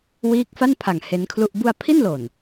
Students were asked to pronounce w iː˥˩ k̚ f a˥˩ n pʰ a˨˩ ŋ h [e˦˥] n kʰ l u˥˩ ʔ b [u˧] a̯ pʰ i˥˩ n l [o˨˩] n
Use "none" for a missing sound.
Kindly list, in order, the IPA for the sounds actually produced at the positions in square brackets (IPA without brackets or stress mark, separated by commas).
e˦˥, u˧, o˨˩